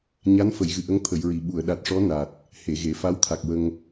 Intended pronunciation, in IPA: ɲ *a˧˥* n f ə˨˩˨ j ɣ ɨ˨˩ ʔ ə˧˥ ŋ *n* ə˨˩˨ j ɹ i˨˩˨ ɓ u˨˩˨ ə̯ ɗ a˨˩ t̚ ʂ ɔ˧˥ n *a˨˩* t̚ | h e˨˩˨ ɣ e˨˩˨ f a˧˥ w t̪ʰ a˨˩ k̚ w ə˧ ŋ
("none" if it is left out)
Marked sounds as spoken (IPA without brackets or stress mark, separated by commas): a˧˥, t̪ʰ, a˨˩